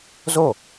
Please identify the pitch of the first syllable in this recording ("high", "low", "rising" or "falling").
falling